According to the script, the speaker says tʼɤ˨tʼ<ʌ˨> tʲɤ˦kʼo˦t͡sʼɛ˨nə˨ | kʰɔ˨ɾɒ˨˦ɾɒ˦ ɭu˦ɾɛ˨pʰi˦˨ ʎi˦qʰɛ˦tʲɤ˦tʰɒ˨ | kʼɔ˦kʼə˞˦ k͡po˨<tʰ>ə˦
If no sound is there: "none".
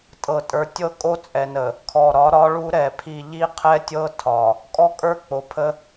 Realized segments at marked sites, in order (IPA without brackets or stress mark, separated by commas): ə˞˨, pʰ